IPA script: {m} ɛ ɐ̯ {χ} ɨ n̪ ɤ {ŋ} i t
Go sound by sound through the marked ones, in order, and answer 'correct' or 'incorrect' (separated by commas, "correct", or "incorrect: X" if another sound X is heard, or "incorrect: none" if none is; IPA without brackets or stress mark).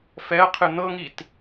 incorrect: f, incorrect: qʰ, correct